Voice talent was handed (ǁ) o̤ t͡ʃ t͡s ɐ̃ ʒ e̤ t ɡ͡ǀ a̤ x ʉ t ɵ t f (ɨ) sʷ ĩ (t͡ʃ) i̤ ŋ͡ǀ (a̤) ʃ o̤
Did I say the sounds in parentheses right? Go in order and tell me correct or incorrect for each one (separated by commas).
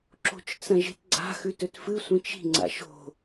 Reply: correct, correct, correct, incorrect